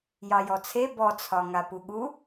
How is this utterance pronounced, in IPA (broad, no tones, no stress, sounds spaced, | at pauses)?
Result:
j ɑ j ɔ t͡sʰ e b ɔ t͡sʰ ɒ ŋ a p u ɠ u